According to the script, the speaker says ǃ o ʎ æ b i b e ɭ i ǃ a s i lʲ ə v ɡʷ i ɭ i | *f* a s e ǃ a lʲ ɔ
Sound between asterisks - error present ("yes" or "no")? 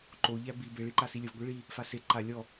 no